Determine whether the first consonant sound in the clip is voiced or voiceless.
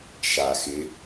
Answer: voiceless